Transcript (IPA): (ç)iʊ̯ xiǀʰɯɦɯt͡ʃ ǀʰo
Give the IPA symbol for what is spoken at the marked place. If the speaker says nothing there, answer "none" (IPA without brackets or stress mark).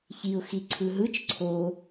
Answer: ç